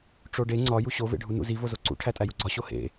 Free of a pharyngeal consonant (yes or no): yes